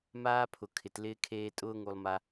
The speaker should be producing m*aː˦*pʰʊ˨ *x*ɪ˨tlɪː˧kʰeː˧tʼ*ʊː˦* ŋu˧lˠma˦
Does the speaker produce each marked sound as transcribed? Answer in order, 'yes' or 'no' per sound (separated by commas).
yes, no, yes